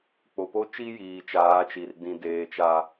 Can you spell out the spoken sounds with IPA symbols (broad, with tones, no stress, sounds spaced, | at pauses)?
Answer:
k͡p o˨ p o˦ t͡ʃ i˦ j iː˨ t͡ʃ aː˨˦ t͡ʃ i˨ r d ĩ˨ d eː˨ t͡ʃ a˨